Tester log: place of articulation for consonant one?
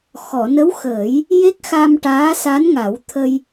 velar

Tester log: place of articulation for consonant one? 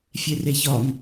labial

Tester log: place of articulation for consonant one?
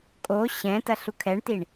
velar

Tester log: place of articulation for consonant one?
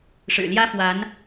retroflex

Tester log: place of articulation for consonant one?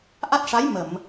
glottal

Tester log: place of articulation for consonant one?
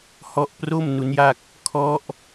glottal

